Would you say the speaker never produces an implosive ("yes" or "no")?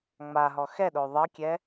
no